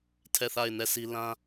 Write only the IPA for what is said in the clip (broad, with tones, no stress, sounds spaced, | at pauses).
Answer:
tʰ ɛ˦˨ θ a˦˨ ɪ̯ n ɛ˦˨ s i˦ l ã˦